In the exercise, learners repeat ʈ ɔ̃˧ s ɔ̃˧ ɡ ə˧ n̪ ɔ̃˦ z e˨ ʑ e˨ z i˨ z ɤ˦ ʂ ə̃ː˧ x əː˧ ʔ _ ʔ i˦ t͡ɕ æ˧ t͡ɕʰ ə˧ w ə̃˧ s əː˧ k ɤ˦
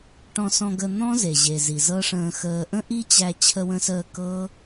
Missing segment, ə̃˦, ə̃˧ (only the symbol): ə̃˦